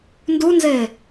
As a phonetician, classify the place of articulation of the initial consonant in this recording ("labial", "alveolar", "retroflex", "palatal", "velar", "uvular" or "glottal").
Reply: alveolar